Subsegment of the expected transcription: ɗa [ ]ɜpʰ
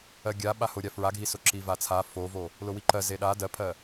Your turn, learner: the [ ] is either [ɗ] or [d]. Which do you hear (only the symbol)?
d